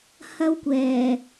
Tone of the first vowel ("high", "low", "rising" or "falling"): high